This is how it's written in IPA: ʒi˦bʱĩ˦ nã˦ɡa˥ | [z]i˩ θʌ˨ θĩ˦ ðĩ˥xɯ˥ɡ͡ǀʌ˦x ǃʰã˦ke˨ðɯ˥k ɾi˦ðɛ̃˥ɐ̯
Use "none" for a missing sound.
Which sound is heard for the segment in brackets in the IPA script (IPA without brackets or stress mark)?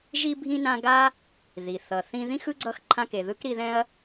ð